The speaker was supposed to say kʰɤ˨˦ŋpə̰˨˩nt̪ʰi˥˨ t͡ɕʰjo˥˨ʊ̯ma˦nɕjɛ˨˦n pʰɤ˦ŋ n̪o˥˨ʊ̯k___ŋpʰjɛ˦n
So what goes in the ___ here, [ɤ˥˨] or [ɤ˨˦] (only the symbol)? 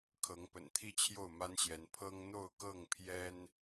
ɤ˥˨